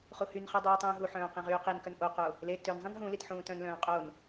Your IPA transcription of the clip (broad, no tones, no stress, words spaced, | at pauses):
χuhynχø dˤuːtˤũːɦuħœ̃ː qĩʁyːqinkœn ʔoqo | le tøn zˤĩnɦũlit ħũːtœ̃nlœ̃ː qʼon